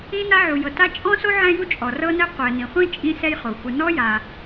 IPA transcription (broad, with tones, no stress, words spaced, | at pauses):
ĩ˥na˥ ʕu˩jɤ˩ta˥ t͡ʃʼɔ̃˥so˥ ʕɛ̃˥ju˥t͡ʃʼɔ˩ rɤ˥nɛ˥ qʷɛ˩nĩ˩χʷĩ˥ t͡ʃʼĩ˥sɛ˥jχo˩ xʷɯ˩nɔ˥ja˩